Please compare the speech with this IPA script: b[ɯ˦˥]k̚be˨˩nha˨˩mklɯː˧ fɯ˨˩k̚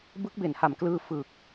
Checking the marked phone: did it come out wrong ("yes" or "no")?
no